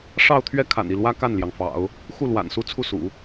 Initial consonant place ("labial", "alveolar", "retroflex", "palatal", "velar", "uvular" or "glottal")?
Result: retroflex